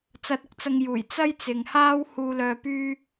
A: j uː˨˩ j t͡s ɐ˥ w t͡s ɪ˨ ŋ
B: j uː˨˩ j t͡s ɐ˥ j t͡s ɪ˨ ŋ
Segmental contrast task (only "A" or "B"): B